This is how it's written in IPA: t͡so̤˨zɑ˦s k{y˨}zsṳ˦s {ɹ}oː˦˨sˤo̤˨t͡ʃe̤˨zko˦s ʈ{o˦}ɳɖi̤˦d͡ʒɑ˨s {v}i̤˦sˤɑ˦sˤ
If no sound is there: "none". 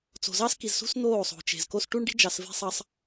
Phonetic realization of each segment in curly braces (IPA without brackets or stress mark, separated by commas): i˨, n̪, u˦, v